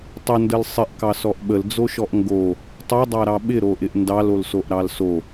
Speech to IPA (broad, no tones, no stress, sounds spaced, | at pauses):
tˤ ə n d ə l sˤ ɪ ʔ k ɑ s ɔ ʔ ɓ ə l d͡z o ʃ ɔ ʔ ŋ ɡ o | tˤ o dˤ ɑ ɾ ɑ ɓ ɪ ɾ o ʔ ɪ ʔ n d ɑ l o l s o ʔ ɾ ɑ l s o